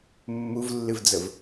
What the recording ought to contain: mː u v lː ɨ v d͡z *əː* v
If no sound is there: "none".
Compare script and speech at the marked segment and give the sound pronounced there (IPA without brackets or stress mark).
ə